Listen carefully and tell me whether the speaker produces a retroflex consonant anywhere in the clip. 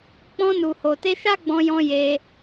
no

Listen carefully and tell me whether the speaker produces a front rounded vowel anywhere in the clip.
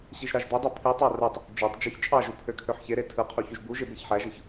yes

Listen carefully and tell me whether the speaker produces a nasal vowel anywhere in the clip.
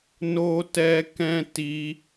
yes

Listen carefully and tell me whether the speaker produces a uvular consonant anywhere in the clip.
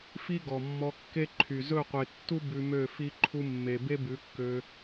yes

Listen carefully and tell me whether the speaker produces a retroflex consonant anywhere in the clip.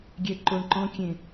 yes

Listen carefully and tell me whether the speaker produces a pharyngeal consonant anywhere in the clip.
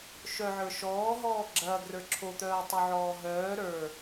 yes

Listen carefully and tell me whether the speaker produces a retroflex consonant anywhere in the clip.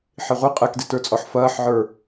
no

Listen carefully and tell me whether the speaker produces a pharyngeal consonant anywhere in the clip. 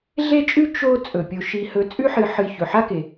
yes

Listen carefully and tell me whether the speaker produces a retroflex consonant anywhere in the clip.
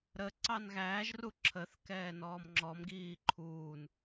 no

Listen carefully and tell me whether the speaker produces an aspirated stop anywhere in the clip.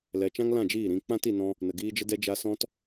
no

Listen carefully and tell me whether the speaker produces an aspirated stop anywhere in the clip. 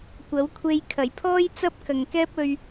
yes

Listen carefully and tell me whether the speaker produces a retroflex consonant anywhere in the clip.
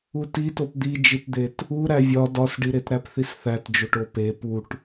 yes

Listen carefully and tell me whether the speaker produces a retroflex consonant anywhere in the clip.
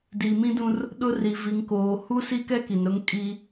no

